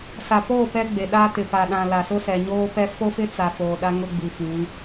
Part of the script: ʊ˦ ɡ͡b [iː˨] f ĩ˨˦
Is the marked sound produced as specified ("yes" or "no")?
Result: no